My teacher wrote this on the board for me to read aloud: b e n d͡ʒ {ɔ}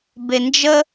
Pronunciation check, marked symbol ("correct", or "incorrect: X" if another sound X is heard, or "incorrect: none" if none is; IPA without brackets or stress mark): incorrect: ə